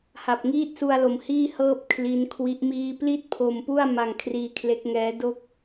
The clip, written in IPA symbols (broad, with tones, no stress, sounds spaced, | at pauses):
h a˨˩ p̚ ŋ iː˥˩ t̚ s u˧ a̯ l o˩˦ m h iː˥˩ h ɤː˥˩ p̚ kʰ l i˦˥ n kʰ w i˦˥ ʔ m iː˥˩ p l i˥˩ t̚ pʰ o˧ m p u˥˩ a̯ m a˧ ŋ kʰ r iː˧ kʰ l e˦˥ k̚ ŋ ɛː˦˥ d o˥˩ k̚